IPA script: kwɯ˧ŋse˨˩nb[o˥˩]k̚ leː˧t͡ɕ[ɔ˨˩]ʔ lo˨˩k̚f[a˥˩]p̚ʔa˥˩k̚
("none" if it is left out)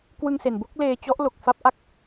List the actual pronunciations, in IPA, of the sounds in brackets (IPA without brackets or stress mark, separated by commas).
o˥˩, ɔ˦˥, a˥˩